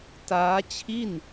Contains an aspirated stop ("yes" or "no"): yes